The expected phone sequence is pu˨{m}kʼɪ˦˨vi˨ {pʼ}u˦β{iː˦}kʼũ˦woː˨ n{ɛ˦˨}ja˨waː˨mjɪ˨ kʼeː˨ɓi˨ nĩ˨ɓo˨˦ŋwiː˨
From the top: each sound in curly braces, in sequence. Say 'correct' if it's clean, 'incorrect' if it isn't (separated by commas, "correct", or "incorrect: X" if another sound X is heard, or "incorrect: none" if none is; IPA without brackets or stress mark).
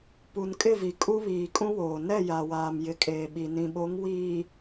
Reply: incorrect: n, incorrect: kʼ, incorrect: iː˨, correct